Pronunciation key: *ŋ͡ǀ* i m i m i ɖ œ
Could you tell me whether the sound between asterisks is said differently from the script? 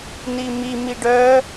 yes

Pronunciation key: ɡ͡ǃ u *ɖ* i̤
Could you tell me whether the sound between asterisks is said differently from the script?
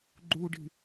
no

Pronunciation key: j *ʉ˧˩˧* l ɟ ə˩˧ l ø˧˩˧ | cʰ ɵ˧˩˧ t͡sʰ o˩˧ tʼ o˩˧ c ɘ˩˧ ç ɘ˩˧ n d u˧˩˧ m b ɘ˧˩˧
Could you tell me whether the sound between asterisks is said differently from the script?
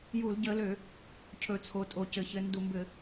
yes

